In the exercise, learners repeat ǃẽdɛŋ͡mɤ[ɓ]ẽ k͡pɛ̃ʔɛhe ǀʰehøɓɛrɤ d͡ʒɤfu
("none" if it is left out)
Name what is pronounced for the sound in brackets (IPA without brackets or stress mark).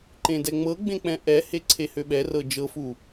ɡ͡b